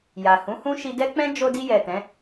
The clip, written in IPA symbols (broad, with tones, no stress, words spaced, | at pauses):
ja˨hũ˨˦hũ˦ ʃi˧dɛ˦k͡pɛ̃˦ d͡ʒo˧di˧jɛ˨ tɛ̃˨˦